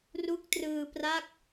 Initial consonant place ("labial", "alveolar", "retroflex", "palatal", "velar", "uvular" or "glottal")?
alveolar